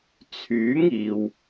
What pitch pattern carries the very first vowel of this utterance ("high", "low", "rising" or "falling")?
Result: rising